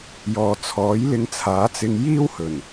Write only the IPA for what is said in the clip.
j ɔː˨ t͡sʰ ɔː˨˥ j l ɪ˧ ŋ t͡sʰ aː˨˥ t͡s ɪ˧ ŋ j iː˥ w h ɵ˨˩ n

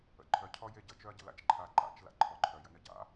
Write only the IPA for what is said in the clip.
ə̰ ǃʰ œ cʰ ɔ j e ɟ ə t͡ʃ œ ɐ̯ ɟ ə̰ l a̰ t͡ʃ ǃʰ a ǃ a̰ t͡ʃ l a̰ ǃʰ ɔ ǃʰ œ j ə̰ n ə ɟ a̰

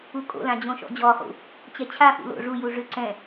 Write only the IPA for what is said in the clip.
u kʼ o̰ l ã d͡ʑ õ ʃ ɔ̰ d͡ʑ ɔ χ ṵ | t͡ɕ ɛ t͡ɕʰ a f ṵ l o̰ ʐ u j u ʐ ʏ ǀ ɛ̃

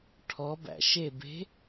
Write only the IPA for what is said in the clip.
ʈʰ ɔ b æ̰ ʃ e b e̤

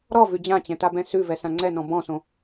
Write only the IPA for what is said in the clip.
ɾ ɔ v ʉ d͡ʑ ã t͡ɕ ɛ̃ t a b ɛ̃ s ʉ v ɛ s ã ŋ͡ǀ ɛ n ɔ̃ b ɔ̃ s õ

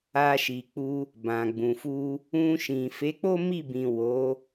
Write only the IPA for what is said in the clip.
a˧ ʃ i˨ k͡p u˧ | b ã˨ ɡ͡b ũ˨ f u˧ | ũ˧ ʃ ĩ˨ f e˨˦ k͡p o˦ m i˦˨ b ĩ˨ w o˨˦

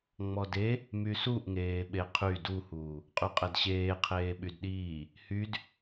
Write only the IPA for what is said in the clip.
ŋ͡m ɔ d e | m y s u ʔ ŋ eː ɓ e qʰ y d u h uː | qʼ y qʼ ɛ d ɕ eː qʰ eː ɓ y d ɗ iː | h y d

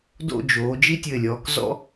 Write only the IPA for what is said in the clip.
d o̰˥˧ d͡ʒ oː˩˧ d͡ʒ i˥ tʲ ɘ˧˩ lʲ ɔː˩˧ k z ɔ̰˥

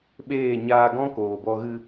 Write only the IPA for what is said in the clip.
ɓ eː˦˨ ɲ aː˧ ɡ ɔ̃˦ k oː˨ b ɔ˧ ɣ ɨ˧

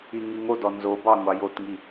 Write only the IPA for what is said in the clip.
i ŋ i ŋ o d ɔ n z o b ɑ ŋʷ ɑ j o t ŋ i

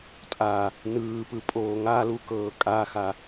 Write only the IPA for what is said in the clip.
tʼ a | n ɯː p ɯ pʼ oː ŋ a l u k ɤː kʼ a x a

